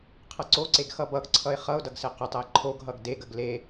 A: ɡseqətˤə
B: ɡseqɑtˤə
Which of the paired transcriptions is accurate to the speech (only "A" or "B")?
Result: A